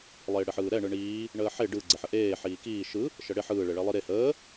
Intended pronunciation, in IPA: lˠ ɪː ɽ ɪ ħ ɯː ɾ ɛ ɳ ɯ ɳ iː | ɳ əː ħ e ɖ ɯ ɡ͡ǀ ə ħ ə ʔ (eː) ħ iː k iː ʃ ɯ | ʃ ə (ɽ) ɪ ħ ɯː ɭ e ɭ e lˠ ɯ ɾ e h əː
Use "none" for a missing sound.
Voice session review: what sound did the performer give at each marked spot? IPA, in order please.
eː, ɽ

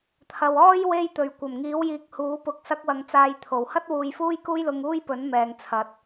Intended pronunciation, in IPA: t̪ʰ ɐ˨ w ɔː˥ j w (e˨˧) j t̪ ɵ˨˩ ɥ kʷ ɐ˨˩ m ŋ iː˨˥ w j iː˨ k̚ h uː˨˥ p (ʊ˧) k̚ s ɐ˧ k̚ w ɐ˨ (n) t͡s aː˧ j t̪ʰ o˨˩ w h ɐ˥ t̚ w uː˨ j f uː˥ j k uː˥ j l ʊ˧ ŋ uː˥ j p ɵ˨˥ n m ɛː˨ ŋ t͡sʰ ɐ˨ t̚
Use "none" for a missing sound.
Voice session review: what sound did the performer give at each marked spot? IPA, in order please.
e˧, ʊ˧, ŋ

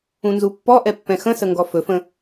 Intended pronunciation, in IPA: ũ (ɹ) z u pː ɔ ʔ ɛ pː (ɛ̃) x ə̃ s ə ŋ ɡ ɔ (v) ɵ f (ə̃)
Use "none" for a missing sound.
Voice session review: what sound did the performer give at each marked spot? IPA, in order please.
n, ɛ̃, f, ə̃

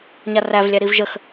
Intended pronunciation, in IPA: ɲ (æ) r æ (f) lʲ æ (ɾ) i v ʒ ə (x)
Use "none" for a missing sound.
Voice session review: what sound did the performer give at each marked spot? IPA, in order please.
a, v, ɾ, x

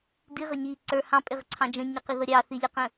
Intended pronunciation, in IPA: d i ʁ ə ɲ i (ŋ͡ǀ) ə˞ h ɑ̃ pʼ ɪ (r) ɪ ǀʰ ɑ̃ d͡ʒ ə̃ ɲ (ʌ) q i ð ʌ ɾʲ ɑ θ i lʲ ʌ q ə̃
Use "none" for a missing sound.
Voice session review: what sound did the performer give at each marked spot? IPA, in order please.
ǀ, ʁ, ʌ

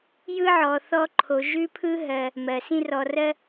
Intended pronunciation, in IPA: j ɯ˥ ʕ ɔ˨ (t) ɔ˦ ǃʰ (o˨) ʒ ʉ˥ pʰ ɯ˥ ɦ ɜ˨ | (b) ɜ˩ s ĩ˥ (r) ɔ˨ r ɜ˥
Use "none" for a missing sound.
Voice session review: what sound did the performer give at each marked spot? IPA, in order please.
θ, o˨, m, r

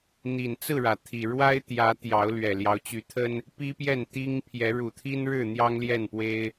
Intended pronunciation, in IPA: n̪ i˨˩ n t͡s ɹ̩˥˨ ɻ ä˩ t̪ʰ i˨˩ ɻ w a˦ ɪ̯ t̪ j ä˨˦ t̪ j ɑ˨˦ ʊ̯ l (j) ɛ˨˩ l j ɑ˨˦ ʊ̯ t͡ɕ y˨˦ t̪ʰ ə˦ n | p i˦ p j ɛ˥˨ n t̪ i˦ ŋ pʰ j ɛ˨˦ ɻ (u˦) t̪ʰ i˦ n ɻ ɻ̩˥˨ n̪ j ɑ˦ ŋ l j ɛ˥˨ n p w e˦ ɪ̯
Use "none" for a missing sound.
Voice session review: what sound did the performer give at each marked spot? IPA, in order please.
ɥ, u˨˩

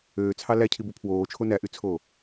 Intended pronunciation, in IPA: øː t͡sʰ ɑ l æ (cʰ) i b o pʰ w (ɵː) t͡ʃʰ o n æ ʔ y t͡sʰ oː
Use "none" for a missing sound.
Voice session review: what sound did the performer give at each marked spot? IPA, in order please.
cʰ, oː

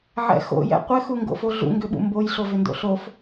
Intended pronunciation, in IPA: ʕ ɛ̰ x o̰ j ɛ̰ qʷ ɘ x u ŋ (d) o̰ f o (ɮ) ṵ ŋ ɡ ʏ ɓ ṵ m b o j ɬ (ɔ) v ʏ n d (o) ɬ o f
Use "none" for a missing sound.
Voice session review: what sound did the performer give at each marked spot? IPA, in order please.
ɡ, ɮ, o, o̰

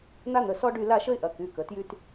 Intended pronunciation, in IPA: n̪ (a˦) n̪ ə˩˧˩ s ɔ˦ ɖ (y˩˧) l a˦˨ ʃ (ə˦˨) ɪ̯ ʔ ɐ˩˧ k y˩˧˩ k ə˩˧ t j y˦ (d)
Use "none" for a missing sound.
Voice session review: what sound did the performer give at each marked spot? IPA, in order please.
a˦, y˦˨, ə˦, t

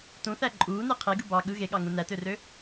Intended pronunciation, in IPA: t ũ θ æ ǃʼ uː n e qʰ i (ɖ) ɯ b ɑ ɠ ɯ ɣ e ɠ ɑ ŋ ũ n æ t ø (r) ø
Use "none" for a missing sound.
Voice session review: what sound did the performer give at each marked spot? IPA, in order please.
ɡ, r

